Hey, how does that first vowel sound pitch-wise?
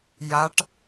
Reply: rising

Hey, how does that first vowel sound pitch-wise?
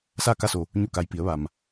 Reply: falling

